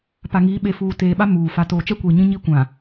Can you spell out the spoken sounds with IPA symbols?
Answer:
p a˨ ŋ iː˨˦ ɓ e˨ f uː˨ t eː˨ ɓ a˦ m uː˨ f a˨ t oː˨ t͡ʃ ɛ˦ kʷ iː˨ ɲ ĩ˦ ɲ i˦ kʷ ã˨

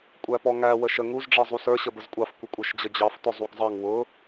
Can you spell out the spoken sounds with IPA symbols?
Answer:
kʷʼ æ p ɔ ŋ æ w ə ʃ ə ŋ u z ɖ͡ʐ ɛ zˤ u s ə˞ ɕ ə b ə z kʷʼ ɑ f kʷ ɪ kʷʼ ə˞ ʃ d͡ʑ ə d͡ʑ ɑ f t ʊ zˤ u ɡ zˤ ɑ ŋ w ʊ

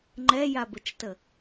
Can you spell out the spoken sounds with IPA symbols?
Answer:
ŋ͡ǃ ɛ j a b ə t͡ʃ t ə

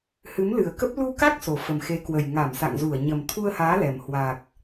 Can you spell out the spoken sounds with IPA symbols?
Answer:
h ɨ˨˦ m l ɨ˨˩ ə̯ k ə˦˥ p̚ l u˧ k a˦˥ k̚ s o˨˩ f ə˨˩ m x e˨˦ k w ə˨˩ j ŋ a˧˩ m s a̰˧˨ ŋ z u˧˩ ə̯ ɲ ə˨˩ m t̪ʰ u˧ ə̯ h aː˨˦ l ɛ˨˩ m h w a˨˩ k̚

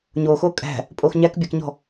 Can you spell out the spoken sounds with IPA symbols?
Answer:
ɲ o x o kʼ æ̤ | pʼ o x ɲ æ k bʲ æ k ɲ ɔ̤

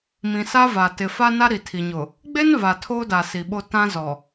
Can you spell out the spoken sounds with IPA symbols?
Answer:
m ĩ˨ s a˦ v a˨ t ɪ˨ f a˦ n a˦ ɾ i˨ tʰ i˨ ɲ ʊ˨ | ɡ͡b e˦ n v a˨ tʰ oː˦ d a˨ s i˨ ɓ o˦ t ã˦ z ɔ˨

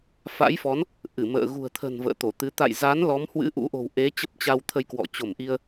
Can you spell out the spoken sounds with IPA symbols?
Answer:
f a̰˧˥ j f ɔ˨˦ n | ʔ ɨ˧˩ m ə̰ː˧˨ ɣ ṳ˨˩ ə̯ t̪ʰ ə̤˨˩ n v ə̰ː˧˨ t̪ o˧˩ t̪ ɨ˨˦ t̪ a̰˧˨ j z a˨˦ n l ɔ˨˦ m h w ɨ̰˧˥ ʔ ṵ˧˥ ʔ o̤˨˩ w ʔ e˨˦ t͡ɕ ə˦˥ p̚ t͡ɕ a˧ w t̪ʰ ə˧ j k w ɔ̰˧˨ t͡ɕ o˧˩ m ʔ i˧ ə̯

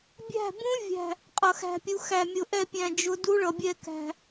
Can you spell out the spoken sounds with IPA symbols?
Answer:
bʲ æ̤˦˨ b ũ˦˥ vʲ æ̤˦˨ | qʼ ʌ˨˩˦ x æ̤˦˨ pʲ u˨˦ x æ˨ mʲ ʊ˨ ʔ ɛ˦˨ pʲ æ̃˨ d͡ʒ ʊ˨˦ d u˦˥ ɭ ʌ˨ bʲ ɛ˦˨ k æ̤˨

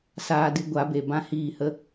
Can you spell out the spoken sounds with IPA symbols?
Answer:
s aː˧ d ɨ˧ ɡʷ a˨˦ b e˨ b ã˦ h iː˦˨ h ə˦

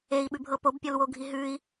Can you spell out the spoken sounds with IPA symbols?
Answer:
e i̯ ɓ ʉ bʱ ɤ p o b pʲ ɔ l w o ɡʱ i ɦ ʉ i̯

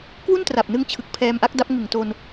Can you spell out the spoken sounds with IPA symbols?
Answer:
k w u˥˩ n t r a˨˩ p̚ n ɯ˧ ŋ t͡ɕʰ ɯ˨˩ k̚ pʰ ɛː˧ m ʔ a˦˥ k̚ d a˦˥ p̚ ŋ ɯ˨˩ ŋ t o˧ n

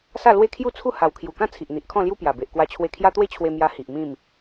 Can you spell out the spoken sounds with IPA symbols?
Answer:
s a˥˧ l w e˦ kʰ j u˥˧ t͡sʰ u˥˧ h a˨˩ w kʰ j u˨˩ k ã˥˧ t͡sʰ i˨ ʔ n̪ i˨ ʔ kʰ ɔ̃˥˧ l j u˦ p j a˨˩ b e˨ ʔ k w a˧ t͡ɕʰ w e˧ kʰ j a˦ t̪ w e˥˧ t͡ɕʰ w e˧ m j a˧ h i˨ ʔ m ĩ˥˧ m

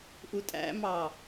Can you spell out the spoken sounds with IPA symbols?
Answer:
ʔ u tʼ æ̰ m ɑ

